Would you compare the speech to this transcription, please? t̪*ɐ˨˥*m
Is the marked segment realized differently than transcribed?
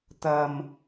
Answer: yes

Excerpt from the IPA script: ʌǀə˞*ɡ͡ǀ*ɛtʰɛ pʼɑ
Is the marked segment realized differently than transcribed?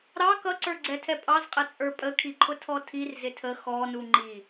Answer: no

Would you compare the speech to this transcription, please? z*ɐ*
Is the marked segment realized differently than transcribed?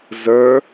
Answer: yes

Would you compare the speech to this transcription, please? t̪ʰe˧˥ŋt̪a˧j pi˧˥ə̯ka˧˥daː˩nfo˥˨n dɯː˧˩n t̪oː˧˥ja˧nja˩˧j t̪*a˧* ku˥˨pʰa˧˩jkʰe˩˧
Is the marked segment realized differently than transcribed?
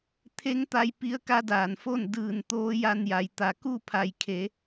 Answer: yes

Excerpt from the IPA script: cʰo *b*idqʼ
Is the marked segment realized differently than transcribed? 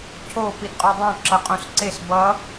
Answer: yes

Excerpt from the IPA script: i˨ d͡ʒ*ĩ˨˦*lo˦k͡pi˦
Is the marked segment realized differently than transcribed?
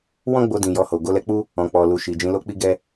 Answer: no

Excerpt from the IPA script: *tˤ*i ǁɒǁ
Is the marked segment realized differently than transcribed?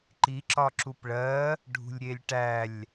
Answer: yes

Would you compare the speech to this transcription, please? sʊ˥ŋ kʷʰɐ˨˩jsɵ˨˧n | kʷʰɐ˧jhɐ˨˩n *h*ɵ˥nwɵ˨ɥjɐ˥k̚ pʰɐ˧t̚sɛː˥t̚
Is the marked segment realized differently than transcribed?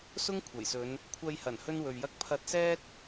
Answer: no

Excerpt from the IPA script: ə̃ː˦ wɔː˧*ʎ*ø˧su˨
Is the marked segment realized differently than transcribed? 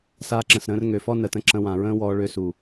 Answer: yes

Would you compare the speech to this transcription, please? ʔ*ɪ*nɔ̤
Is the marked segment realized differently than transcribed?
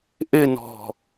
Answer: no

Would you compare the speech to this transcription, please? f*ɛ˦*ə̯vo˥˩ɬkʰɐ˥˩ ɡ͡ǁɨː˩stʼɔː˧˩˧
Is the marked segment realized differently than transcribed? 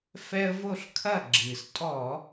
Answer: no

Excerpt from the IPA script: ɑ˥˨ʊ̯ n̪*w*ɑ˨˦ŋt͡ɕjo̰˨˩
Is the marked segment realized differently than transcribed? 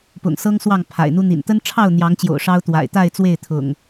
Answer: yes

